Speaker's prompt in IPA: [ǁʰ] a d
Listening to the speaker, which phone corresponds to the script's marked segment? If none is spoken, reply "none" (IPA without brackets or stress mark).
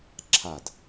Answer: ǁʰ